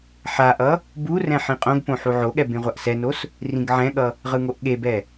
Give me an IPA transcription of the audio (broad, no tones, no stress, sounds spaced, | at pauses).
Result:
ħ a ʔ ʌ | b u r ɛ̃ ħ ĩ qʼ õ ɡ p õ ħ u ʕ o ɠ ɛ b ẽ ʁʷ a ʔ s ɛ n o s | r ĩ ɡ ʕ ɛ̃ ɠ ʌ | ʁ ɯ ŋ o ʔ ɠ e b ɛ